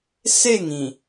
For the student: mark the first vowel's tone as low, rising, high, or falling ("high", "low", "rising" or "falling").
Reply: falling